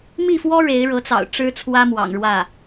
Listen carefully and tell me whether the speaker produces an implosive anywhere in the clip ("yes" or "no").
no